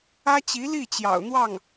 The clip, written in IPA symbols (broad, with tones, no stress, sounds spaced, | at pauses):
ä˥ t͡ɕ i˧˥ l i˥˩ t͡ɕ j ɑ̰˨˩ ʊ̯ n̪ w ɑ˥˩ ŋ